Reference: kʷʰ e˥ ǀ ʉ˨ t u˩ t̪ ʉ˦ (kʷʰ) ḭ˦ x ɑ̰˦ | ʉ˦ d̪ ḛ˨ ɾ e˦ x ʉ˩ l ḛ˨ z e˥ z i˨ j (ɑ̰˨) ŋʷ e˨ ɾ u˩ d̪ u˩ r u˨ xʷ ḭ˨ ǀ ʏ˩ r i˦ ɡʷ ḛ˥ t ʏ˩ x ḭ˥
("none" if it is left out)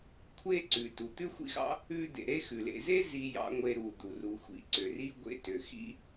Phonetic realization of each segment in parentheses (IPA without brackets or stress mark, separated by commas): xʷ, ɑ̰˨